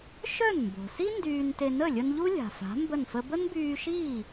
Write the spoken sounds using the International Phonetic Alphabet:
ʃ œ˥˩ n m b o̤˩ s i˥ n d yː˧ n t e˧ n ə˥˩ lʲ ə˧ n ʎ u˥ lʲ a̤˩ f a̤˩˥ m b ə˥˩ n f ə˥ b ə˥ n b yː˧ ʃ iː˥˩

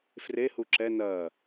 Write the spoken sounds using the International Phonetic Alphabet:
f r e h u ǁ ɛ n ɐ

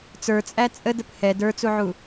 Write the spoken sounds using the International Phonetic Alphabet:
t͡s ə˞ t͡sʼ æ t͡sʼ ə d ə p h ɛ d ə˞ t͡s u ʕ u

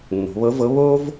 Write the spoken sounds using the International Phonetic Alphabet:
nː o̤˩˧ β ɤ˧˥ v ɤ˧˥ β o˥ v

